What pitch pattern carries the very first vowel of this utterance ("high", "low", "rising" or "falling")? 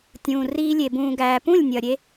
low